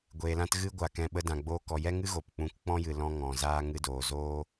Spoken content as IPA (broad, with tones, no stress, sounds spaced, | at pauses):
ɡʷ eː˨ l ã˧ t ɣ ɨ˦ ɡʷ a˨ k ɛ̃˧ ɓ ə˧ d ã˨ ɡ͡b oː˧ k ɔ˨ j ɛ˦ ŋ ɨ˦ ɣ o˨ p k͡p ũ˧ k k͡p ɔ̃˦ j ɨ˨ l ɔ̃˦ ŋ ɔ̃˨ z aː˦ ŋ ɨ˧ d oː˨ z oː˦